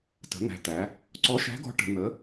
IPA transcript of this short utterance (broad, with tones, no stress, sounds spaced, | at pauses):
t ə̤˩˧ n̪ æ̤˩˧ t̪ æ˩˧ | ǀ ɔ˨˥ ʃ æ̤˨˥ ɡ ɔ̤˨˥ ʈ ə̤˩˧ n̪ ə˨˥